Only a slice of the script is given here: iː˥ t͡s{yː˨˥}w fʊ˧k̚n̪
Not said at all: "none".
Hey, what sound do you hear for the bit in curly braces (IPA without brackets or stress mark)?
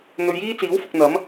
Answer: iː˨˥